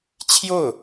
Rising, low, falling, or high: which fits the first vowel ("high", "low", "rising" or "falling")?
falling